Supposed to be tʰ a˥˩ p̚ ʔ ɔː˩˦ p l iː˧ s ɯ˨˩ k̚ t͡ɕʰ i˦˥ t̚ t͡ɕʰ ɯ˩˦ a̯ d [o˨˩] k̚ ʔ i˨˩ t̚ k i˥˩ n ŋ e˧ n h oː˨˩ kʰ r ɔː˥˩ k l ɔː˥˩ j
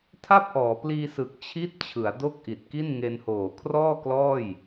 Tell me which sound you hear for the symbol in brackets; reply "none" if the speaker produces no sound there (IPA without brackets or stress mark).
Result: o˥˩